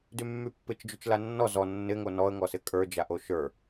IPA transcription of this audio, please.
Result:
d y mː y pː ɪ t͡ʃ d͡ʒ y t͡ʃ l a nː ɔ z ɔ nː ɪ ŋ o n ɔ ə̯ ŋ ɔ s ɪ kʼ ə˞ d͡ʒ a ʔ o ʃ ə˞

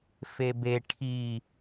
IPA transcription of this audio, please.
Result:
f e b e ʈʰ i

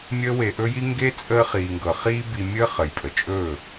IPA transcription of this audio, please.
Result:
mʲ əː˦ w e˧ ʔ ɵ˦ j i˦ ŋ ɡ e˦ t͡sʼ əː˧ χ iː˨ ŋ ɡ ɤ˨ χ iː˦ b i˧ mʲ əː˦ χ ə˨ j pʼ ə˨ t͡ʃʼ ɵː˦˨

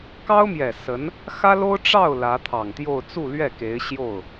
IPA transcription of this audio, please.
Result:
k ɑ˥ ʊ̯ m j ɛ˨˩ s ə˧˥ n | x ä˥ l o˥ ʊ̯ ʈ͡ʂ ɑ˥˩ ʊ̯ l ä˧˥ t̪ʰ ɑ˨˩ ŋ t̪ j o˥˧ ʊ̯ t͡s u˥˧ l ɥ ɛ˥˩ k e˧˥ ɪ̯ ɕ j o˥˩ ʊ̯

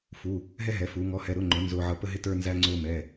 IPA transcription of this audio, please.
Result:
f u˧˥˧ | ɦ ɛ˥ ɦ ɛ˨˥ f uː˨˥ ŋ ɔ˧˥˧ h ɛ˧˥˧ ɾ ʊ˧˥˧ ŋ͡ǃ ʊ˨˥ n z ʊː˥ ʕ ʌ˥ p ə˥ ɦ ɪ˥ t ə˞˥ n z æ˥ ŋ͡ǀ ʊː˥ m ɛ˧˥˧

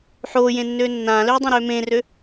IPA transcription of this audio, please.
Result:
ħ oː j ẽ nː øː nː ãː l øː dˤ ẽ ɾ øː m ẽː r ø

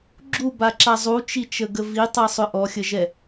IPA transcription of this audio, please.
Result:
ɡ͡ǁ u b a ǁ a zˤ u t͡ʃ i t͡ʃ ə ɡ ə v i tˤ ɛ sˤ ʏ ʔ ɔ xʲ ə ʒ ɛ

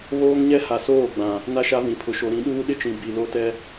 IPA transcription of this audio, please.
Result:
β oː˦ ŋ ɲ ɛ˦ h a˨ s oː˦˨ ɡ͡b ã˨ | n a˦ ʃ a˦ v ĩ˨ pʰ ʊ˨ ʃ o˨ ɾ ĩ˨˦ ɗ uː˦ ɗ ɪ˦ t͡ʃ ĩ˨ b i˨ l o˦ t ɛ˦

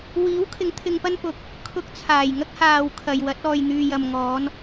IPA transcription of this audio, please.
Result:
w iː˨˥ w kʰ ɪ˨˥ ŋ t̪ʰ ɪ˧ ŋ p ɐ˥ n p ʊ˨˥ k̚ | kʰ ʊ˧ k̚ t͡sʰ aː˨˩ j ŋ ɐ˥ k̚ h aː˨ w kʰ ɐ˨ j w ɐ˨˥ t̚ ɔː˨ j n̪ yː˨ j ɐ˨ m ŋ ɔː˨˧ n

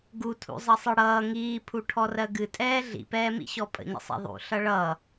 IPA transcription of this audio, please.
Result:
ɡ u tʰ ṵ zˤ ʌ sˤ ɨ ɽ ʌː ŋ iː pʰ u ʈʰ ɔ r ɜ ɡ ɨ tʼ ɛː ɮ ḭ p ɛː m ḭ ɕ ɔ pʼ ə̰ ɲ ə̰ sˤ ɛ̰ ðˤ ṵ ɬ ʌ ɭ ʌ

